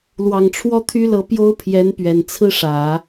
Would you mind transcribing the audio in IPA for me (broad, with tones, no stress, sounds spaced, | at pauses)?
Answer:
l w ɑ˨˩ ŋ ʈ͡ʂʰ w ɔ˥ t̪ʰ y˥ l ɤ˧˥ p j o˥ ʊ̯ pʰ j ɛ˧˥ n p ɥ ɛ˨˩ n t͡sʰ ɹ̩˥ ʂ ä˨˩˦